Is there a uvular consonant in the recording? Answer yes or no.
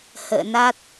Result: no